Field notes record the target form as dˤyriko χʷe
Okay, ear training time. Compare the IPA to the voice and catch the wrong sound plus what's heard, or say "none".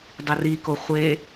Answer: y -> i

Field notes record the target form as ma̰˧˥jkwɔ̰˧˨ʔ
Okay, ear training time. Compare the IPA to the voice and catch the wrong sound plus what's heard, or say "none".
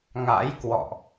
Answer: m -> ŋ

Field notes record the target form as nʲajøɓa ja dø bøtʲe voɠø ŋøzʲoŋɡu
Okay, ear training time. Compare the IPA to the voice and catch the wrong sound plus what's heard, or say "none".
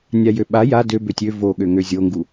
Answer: e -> ø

